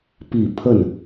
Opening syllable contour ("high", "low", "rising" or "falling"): low